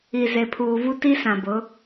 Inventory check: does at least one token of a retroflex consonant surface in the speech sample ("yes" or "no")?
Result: no